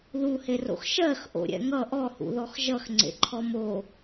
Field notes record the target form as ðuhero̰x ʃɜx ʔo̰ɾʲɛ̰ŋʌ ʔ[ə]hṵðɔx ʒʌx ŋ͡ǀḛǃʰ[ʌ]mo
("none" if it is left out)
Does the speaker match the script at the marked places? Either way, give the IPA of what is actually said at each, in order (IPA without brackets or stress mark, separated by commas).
ɔ, ɔ